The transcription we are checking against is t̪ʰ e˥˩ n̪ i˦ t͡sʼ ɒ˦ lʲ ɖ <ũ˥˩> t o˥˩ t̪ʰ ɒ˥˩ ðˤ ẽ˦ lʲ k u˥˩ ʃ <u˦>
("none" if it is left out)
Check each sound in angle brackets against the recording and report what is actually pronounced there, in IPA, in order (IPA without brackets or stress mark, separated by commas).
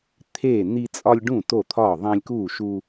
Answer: ũ˥˩, u˦